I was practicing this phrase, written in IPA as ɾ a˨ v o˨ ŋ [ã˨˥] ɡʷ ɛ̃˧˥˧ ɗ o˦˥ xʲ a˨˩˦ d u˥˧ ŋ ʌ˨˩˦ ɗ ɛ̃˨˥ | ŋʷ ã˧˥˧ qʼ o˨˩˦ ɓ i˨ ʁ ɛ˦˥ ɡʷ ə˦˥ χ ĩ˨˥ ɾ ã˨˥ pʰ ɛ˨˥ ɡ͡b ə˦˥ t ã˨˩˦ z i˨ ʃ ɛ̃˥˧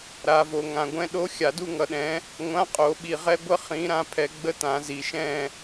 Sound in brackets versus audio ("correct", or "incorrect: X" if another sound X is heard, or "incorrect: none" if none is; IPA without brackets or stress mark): incorrect: ã˨